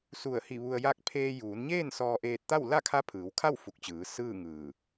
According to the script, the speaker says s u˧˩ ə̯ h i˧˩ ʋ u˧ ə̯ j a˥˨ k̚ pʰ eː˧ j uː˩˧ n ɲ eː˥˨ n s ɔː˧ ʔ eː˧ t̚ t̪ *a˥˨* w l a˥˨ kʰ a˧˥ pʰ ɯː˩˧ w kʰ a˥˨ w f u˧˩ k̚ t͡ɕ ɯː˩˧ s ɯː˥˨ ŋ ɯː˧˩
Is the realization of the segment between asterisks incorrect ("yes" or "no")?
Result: no